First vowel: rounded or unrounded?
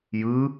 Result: unrounded